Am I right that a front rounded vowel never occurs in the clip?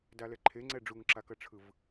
yes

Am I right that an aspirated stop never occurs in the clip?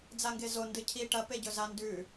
no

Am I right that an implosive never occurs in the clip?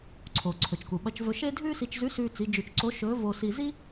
no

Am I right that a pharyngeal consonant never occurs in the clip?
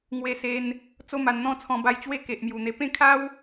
yes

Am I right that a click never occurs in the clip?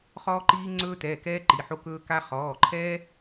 no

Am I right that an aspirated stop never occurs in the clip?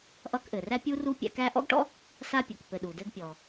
yes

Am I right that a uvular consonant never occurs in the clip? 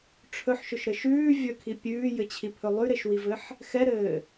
yes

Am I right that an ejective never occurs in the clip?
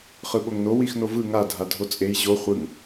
no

